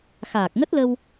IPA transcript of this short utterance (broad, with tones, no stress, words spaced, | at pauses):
xaː˨˩k̚ŋə˦˥t̚lə˧w